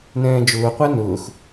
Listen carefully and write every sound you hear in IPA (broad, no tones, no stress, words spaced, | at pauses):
nɛ̃ːd͡ʒʊː qʷænʊːx